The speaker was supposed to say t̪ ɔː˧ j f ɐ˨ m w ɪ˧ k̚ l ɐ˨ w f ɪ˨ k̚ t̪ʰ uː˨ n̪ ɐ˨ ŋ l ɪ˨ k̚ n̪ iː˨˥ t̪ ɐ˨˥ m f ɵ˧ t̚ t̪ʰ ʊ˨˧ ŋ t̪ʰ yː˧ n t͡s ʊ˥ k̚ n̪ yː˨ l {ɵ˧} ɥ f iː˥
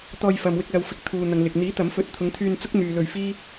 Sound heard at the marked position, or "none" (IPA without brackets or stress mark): ɵ˧